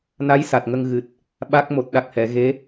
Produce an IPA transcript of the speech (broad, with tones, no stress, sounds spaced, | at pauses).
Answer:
n a˧˥ j s a˨˩ t̚ ŋ ə˧ ŋ ɣ ɨ˨˩ t̚ | ɓ a˦˥ k̚ m o˨˩ t̚ ɗ a˨˩ k̚ h ɛ˨˩˨ ɣ e˧˥